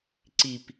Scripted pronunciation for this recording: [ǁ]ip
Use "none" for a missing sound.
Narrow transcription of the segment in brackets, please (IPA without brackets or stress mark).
ǀ